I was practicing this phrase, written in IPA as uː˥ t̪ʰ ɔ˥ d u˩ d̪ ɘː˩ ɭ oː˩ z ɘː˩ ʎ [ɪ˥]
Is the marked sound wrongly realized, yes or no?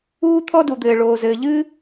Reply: yes